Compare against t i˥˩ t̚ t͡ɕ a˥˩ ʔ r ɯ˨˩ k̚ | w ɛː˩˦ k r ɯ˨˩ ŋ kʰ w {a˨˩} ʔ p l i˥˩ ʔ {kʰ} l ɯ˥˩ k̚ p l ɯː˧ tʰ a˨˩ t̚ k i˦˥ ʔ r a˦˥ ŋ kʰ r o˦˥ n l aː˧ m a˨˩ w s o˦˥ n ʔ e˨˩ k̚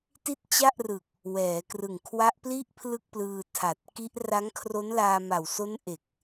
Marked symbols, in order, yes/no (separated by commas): no, no